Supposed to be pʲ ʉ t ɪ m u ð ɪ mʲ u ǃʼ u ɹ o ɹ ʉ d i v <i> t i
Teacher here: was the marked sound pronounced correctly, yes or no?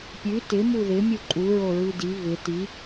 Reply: no